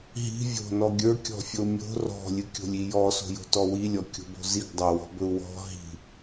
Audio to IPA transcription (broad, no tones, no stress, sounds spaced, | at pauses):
ɦ i̤ vʲ o̤ n ɔ ɡʲ ə˞ kʲ ɔ̤ fʲ o mʲ o̤ r ɔ̤ lʲ ɨ kʲ o̤ lʲ i j ɔ s o̤ j o̤ t ɔ w i lʲ ɔ kʲ o̤ b o̤ z i ɡ dˤ ɵ w ɔ̤ b ɵ u̯ w ɔ̤ ɦ i̤